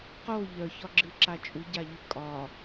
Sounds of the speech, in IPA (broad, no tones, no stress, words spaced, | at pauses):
qo ʎœçɒɡ͡ǁɨǁa t͡ʃʼuɟaʎɨ kʼɒ